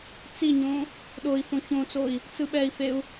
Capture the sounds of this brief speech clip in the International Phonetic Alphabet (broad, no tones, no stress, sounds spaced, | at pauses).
t͡s i ɲ õ | ɗ o i̯ f õ ç õ t͡s o i̯ | t͡s ɯ ɓ ɛ i̯ f e u̯